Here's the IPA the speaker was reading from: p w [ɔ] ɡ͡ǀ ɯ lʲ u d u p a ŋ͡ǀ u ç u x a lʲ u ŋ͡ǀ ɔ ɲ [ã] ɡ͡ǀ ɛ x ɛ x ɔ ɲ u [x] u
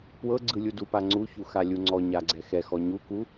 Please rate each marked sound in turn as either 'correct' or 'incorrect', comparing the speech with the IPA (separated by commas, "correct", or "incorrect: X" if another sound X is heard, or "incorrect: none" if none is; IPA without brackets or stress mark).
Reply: incorrect: ɤ, incorrect: a, incorrect: k